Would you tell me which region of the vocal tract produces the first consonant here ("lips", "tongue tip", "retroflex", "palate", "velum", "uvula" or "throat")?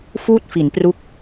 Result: lips